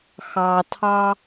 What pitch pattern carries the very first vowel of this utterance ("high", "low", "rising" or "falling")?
low